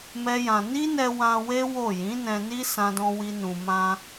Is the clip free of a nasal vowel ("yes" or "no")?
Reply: no